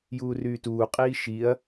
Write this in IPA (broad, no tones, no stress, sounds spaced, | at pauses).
j uː r yː t uː qʼ iː ʃ i ɐ̯